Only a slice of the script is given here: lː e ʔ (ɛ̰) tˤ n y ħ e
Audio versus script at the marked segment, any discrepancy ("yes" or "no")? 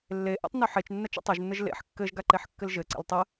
yes